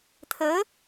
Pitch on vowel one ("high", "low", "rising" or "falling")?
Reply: rising